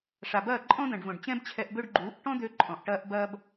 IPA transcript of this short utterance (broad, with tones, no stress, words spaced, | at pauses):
ʂa˨bɐː˦˨ ǃʼɔ̃˦d̪ɐ̃˨ɖvõ˨ɖ t͡ɕɛ̃˦bt͡ɕʰɛ˧ʔbø˦ɖ ɡ͡ǃuː˨˦ʔ ʈɔ̃˦d̪ø˧ ǃʼɔ̃˨ʔʈɐː˦ʔbɐː˦b